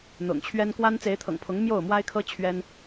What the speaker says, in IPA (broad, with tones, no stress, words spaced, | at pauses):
n̪ʊ̰˨˩ŋt͡ɕʰɥɛ˦n kwa˦n t͡se˨˦ɪ̯t̪ʰɤ̰˨˩ŋpʰʊ˨˦ŋ mjo˥˨ʊ̯mwa˦ɪ̯kʰɤ˦ t͡ɕʰɥɛ˦n